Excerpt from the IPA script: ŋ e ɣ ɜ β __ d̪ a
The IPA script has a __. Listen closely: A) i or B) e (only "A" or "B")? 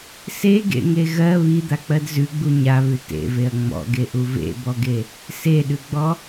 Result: A